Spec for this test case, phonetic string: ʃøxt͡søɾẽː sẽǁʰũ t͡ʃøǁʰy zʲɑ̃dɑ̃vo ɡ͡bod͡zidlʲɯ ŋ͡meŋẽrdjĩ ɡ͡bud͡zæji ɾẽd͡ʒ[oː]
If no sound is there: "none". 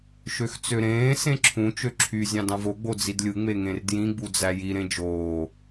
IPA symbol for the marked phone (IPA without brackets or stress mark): oː